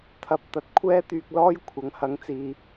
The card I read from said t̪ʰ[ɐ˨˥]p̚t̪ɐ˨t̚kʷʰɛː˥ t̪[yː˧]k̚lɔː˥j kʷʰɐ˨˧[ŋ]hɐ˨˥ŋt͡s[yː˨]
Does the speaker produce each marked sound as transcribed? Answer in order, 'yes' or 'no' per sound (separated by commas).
yes, yes, yes, no